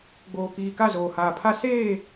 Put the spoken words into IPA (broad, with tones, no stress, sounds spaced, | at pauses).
ɡ͡b oː˨ k iː˨ k a˦˨ z oː˨ h aː˨ pʰ a˦ s eː˦˨